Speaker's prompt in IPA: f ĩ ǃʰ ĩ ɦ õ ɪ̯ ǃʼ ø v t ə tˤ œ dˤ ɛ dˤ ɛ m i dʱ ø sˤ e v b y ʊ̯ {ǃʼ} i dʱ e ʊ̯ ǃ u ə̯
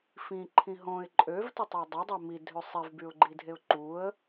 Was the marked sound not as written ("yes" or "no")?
yes